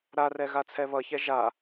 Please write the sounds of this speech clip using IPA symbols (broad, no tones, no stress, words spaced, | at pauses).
ɾarɛ ɣat͡sʰɛβʌçɛ ʒa